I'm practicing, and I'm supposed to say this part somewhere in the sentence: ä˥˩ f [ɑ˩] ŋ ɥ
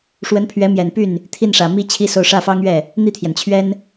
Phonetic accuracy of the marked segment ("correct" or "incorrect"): incorrect